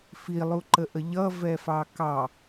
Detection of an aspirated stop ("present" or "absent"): absent